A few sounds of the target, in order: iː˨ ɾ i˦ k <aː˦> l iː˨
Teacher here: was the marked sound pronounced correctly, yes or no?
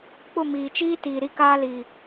yes